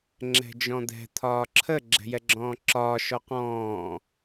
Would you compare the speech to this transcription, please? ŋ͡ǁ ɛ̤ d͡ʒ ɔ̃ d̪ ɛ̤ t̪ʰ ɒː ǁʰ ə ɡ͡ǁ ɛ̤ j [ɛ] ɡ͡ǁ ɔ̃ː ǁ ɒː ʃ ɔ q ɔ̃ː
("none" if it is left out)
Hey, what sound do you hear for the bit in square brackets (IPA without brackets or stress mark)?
ɛ